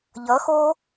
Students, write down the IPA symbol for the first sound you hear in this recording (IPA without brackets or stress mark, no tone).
ʎ